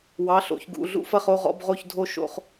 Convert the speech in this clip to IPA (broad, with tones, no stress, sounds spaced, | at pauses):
w ɑ˧˥˧ ɬ o̰˧˥˧ ç ɡ ṵ˧˥˧ ɮ ṵ˥˧ f ɐ˥˧ χ o˥˧ ʁ ɔ̰˥˧ b ʁ o˥˧ ç dʱ o˥˧ ʃ o̰˥˧ χ